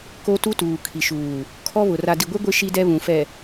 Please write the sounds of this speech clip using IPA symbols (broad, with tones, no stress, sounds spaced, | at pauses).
k o˦ t u˦ t uː˨ kʰ i˨ ʃ uː˨ | kʰ ɔ˦ β ʊ˨ r a˨ d i˨ ɡʷ e˦ ɡʷ ɪ˦ ʃ i˦ d ɛ˦ β ũ˨ f ɛ˨